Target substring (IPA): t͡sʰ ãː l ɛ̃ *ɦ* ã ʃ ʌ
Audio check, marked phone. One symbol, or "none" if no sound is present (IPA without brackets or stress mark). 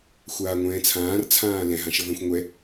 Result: ɦ